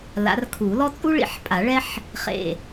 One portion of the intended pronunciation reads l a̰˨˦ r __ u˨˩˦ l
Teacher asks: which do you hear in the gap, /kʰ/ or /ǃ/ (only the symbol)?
kʰ